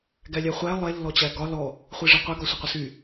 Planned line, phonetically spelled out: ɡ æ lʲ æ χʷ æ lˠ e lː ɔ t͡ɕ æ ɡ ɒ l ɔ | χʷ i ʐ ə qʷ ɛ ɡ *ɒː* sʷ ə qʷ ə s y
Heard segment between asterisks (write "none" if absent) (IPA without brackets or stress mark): ɒ